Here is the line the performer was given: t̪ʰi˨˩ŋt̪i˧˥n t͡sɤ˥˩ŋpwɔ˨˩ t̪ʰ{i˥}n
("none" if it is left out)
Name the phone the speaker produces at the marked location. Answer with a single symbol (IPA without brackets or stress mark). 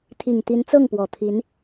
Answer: i˧˥